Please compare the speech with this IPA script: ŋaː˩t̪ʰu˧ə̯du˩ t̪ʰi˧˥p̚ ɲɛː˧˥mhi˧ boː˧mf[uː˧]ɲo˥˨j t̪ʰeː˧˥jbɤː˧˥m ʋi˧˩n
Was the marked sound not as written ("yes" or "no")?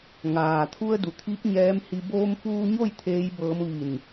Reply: no